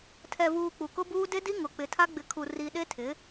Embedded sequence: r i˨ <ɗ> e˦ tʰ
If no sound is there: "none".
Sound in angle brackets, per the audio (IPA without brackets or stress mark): ɗ